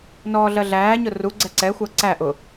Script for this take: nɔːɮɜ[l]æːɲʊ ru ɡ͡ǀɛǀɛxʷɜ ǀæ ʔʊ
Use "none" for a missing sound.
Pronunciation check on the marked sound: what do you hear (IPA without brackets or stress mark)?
ɮ